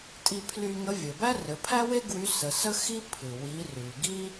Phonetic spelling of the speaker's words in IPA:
tʼi˧pʰly˧ ŋə˧˥vʲɘ˩ bæ˥rɘ˩˧pʰæ˥we˥ ɡwy˧˥sə˩˧ sə˥ xi˥pʰɨ˩ wi˩˧ ry˩ɡi˥

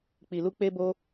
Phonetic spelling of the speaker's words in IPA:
k͡pi˨lu˧ k͡pe˦bo˦

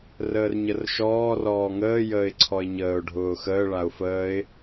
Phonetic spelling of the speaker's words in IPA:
rəːrɲərʃɔː rɔːŋəː jəːɪ̯ǀʰɔɪ̯ɲəːʊ̯ ɖʱʊːxəː ɭaʊ̯fəːɪ̯

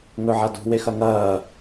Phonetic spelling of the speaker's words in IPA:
ŋɵʕadṳ wexɐŋɐː

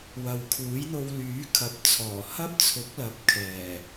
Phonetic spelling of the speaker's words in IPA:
wɐ˨wkʰuː˨˥jn̪o˧w lyː˨˥kʰɐ˨˥p̚t͡sʰɔː˨˩ hɐ˥p̚t͡sʰʊ˨˥k̚lɐ˨˥p̚ kʰɛː˨˩

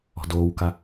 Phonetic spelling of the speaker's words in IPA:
ɔ̤doːwka

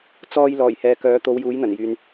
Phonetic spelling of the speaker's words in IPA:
t͡sɔː˧j lɔː˨˩jhɛː˨ kœː˨˥t̪o˨˧w juː˨˥jn̪ɐ˨˩njyː˨n

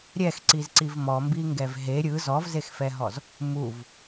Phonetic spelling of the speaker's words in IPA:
ɾʲɛxǀizǀiv mɔmbiŋɡɛv ɦe ɾʲɯ zɔvzexfɛɦɔz | muv

